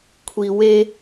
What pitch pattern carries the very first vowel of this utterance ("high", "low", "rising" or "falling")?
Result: low